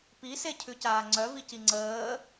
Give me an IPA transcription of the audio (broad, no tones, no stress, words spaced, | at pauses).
pisecʰʉcaː ŋ͡ǀœvici ŋ͡ǀəː